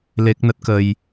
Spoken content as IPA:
l e˦˥ k̚ n ə˦˥ t̚ k ə˧ j

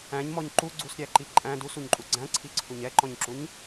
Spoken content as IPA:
æ̃ ɲ m ɔ ɲ ǃ u ɡ͡ǀ u s ɾʲ æ ǃ i ǃʼ æ̃ d u s u ɲ ǃʼ u ɡ͡ǀ æ̃ ǀʰ i ǀʰ u ɲ ɛ ǃ ɔ̃ ɲ ǁ u ɲ

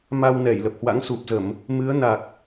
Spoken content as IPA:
m a˧ w n ɛ˧˩ j l ə˨˩ p̚ h w a̰˧˥ ŋ s u˨˩ p̚ z ə˧˩˨ m | m ɨ˨˦ ə̯ n a˨˩ k̚

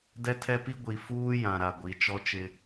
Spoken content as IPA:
d ɛ˦ tʰ ɛ˦ p i˦ ɡʷ i˨ f uː˦ j ã˨ ɾ a˨ ɡʷ i˨˦ t͡ʃ ɔ˦ t͡ʃ ɪ˦

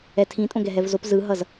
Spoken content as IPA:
ɛ tʰ ĩ tʼ õ ɡ ɛ ɦ ɛ v z o p z ɯ ɦ ʌ z

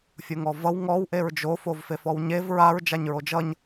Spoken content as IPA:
fʲ o ŋ ɔ v ʌ w ŋ ɔ w ʔ e ɹ d͡ʒ o f o v f e f ɔ w ɲ e v ɹ a ɹ d͡ʒ a ɲ ɹ o d͡ʒ ʌ ɲ

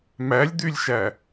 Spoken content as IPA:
m æ lʲ d̪ y lʲ ʃ æ

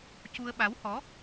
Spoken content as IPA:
c u˧ ə̯ ɓ a˧˥ w h ɔ˧˥

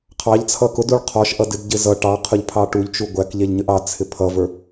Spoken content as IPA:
qʰ ɑ ʎ t͡sʰ ʌ k ʊ d u ɭ qʰ ɔ ʃ ʔ ʌ d ɪ d ɟ ɪ z ʌ ʈ ɑ qʰ ʊ ʎ pʰ ɑ ʈ u ʎ t͡ʃ u ɡʷ æ k ʎ ɛ ʎ ɲ ə ʔ ɑ t͡sʰ ɪ pʰ ʌ v ə˞

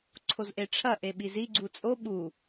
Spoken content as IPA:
ǀʰ o z ʔ e ʈ͡ʂʰ ɐ ʔ e ɓ i z i ɡ͡ǀ u t͡sʼ o ɓ u

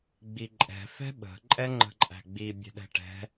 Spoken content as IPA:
ɡ͡b i ǃʼ ɛ̤ f ɛ̤ ɓ ə̤ ǃʼ ɛ ŋ͡ǃ ə̤ ǃʼ æ̤ ɡ͡b i bʲ ɛ̤ ɗ ɛ̤ ʈ ɛ̤

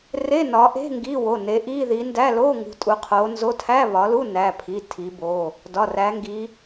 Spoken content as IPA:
r e˧˥˧ n ɒ˨˦ ʔ e̤˧˥˧ ŋ ɡ i˧˥˧ w o˩˧˩ n e˨˦ ʔ i˧˥˧ ð i˨˦ n d æ˧˥˧ l o˧˥˧ ŋ ṳ˨˦ tʼ u˨˦ qʰ o˨˦ n z o˧˥˧ tʰ æ˧˥˧ β ɒ˨˦ l u˧˥˧ n æ˩˧˩ pʰ i˩˧˩ tʰ i˨˦ b o˩˧˩ | d ɒ˩˧˩ r æ˨˦ ŋ ɡ i˨˦

